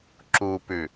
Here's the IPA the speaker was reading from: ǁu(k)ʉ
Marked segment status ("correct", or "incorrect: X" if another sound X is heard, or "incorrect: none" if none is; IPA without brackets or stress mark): incorrect: p